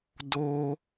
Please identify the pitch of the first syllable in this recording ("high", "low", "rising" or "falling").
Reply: high